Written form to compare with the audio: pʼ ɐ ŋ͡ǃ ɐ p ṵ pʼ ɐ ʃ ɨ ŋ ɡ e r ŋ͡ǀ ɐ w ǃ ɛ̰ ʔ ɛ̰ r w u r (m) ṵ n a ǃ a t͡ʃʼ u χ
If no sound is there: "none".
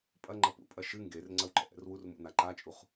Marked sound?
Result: m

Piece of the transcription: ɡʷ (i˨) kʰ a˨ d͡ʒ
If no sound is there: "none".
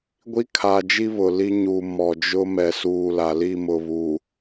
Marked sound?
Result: i˦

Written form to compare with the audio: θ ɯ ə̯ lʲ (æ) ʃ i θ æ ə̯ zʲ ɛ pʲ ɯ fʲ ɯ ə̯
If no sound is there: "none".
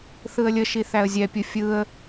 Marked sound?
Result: ə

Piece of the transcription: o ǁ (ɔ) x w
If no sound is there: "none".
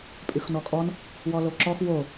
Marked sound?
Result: ɔ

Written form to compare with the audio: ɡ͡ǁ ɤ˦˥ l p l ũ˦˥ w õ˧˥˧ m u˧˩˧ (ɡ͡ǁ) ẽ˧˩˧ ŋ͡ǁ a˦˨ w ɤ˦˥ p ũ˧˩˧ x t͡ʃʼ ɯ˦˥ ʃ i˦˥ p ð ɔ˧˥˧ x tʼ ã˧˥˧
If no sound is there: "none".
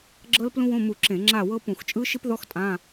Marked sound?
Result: ǁ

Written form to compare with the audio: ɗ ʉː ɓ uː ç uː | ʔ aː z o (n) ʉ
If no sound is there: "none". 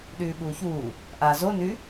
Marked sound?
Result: n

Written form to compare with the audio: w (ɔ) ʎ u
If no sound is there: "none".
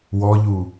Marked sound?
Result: ɔ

